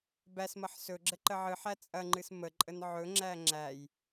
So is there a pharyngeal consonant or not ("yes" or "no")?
yes